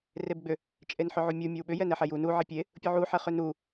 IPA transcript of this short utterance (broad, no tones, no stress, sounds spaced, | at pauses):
r e b ɡ͡b ʏ | t͡ʃʼ e n ħ ʏ ʕ u mʲ u mʲ ɒ w ɓ ʏ j ɛ n ɛ ħ ɛ j u n u ʕ e pʲ e | pʲ u ʕ u ħ ɛ χ ʏ n u